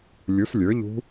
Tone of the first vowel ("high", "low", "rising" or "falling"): rising